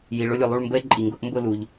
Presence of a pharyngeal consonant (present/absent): absent